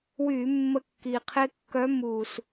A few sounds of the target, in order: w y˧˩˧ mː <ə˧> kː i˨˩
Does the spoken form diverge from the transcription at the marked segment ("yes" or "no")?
no